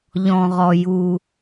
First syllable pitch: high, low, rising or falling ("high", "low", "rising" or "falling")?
low